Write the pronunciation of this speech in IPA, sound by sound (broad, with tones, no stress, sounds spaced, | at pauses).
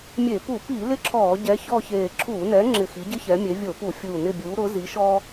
mʲ e˧˩˧ p u˧˩˧ p i˧˩˧ l ɪ˥ ǁʰ ɔː˧˩˧ ɟ ɛ˨˥ ç ɔ˥˧ ç eː˧˩ ǁʰ uː˧˩˧ n ɛ˨˥ ŋ͡ǁ ɪ˧˩ x i˨˥ ɟ ɪ˥ ç ɛ˨˥ mʲ e˨˥ vʲ o˧˩˧ p u˧˩˧ fʲ uː˧˩ n ɪ˥˧ bʲ uː˨˥ ɾ ʊ˨˥ z i˨˥ ʃ ɔː˥